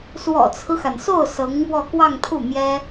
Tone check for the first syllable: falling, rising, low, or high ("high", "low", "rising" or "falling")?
low